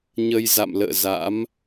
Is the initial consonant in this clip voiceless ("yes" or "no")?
no